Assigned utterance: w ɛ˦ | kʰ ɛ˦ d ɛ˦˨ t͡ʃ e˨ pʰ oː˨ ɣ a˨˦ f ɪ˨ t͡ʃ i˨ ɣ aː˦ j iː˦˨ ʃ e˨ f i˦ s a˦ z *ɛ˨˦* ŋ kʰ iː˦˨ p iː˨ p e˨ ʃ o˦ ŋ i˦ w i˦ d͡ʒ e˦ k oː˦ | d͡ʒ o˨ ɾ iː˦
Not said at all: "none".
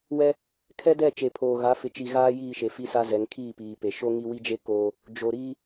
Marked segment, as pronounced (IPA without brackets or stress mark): ɛ˨˦